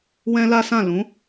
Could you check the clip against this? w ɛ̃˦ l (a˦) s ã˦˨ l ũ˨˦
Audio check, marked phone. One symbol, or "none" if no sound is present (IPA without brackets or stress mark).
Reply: a˦